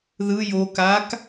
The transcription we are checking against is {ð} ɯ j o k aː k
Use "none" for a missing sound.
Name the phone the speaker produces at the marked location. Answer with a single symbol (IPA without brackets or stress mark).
ð